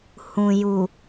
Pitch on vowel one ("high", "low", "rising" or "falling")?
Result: low